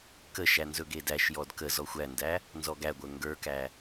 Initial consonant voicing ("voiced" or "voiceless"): voiceless